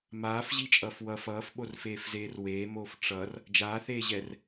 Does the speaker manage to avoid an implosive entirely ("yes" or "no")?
no